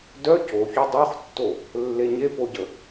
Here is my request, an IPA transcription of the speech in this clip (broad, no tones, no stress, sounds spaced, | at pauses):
d œ c o ç y dˤ o χ tː o | lː e ɲ e p o ɟ ə